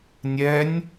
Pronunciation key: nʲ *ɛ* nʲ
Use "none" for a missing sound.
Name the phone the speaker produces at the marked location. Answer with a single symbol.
ɛ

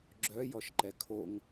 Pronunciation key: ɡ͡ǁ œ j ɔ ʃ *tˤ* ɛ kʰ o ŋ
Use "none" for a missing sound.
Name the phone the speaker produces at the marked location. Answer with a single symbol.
ǃ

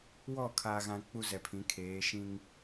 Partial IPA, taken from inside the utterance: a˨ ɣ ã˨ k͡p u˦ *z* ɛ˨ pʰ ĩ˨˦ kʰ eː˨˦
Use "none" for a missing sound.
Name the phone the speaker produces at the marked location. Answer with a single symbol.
z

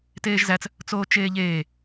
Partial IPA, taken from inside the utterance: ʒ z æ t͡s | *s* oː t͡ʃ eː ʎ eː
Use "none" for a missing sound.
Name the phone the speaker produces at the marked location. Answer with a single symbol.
t͡s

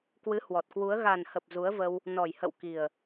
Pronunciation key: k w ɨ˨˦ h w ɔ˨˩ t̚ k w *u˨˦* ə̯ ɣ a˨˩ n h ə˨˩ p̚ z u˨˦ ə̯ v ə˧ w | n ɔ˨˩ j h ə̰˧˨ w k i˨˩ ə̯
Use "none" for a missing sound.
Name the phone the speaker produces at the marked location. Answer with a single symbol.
u˨˦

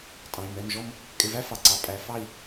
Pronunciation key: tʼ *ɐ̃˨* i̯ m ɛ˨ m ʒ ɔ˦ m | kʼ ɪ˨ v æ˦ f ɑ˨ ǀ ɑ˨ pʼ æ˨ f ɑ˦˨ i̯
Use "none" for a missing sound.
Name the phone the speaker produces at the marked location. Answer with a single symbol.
ɑ̃˨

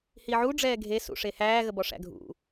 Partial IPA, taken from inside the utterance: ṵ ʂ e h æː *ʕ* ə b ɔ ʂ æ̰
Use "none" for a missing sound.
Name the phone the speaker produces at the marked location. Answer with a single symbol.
ɣ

